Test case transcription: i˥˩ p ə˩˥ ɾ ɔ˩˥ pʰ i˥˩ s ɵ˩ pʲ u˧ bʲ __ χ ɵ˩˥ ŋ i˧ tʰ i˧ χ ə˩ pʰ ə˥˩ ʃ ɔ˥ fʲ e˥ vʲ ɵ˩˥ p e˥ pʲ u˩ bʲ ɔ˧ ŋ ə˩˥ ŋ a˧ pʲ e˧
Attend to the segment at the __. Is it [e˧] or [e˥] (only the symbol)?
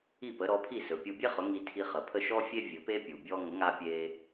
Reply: e˥